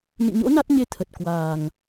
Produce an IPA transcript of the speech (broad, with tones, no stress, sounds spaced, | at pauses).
n ḭ˧˨ ɲ o̰˧˥ n a˦˥ t̚ ɲ e˧ t̪ʰ ə˨˩ t̚ k w aː˨˩ ŋ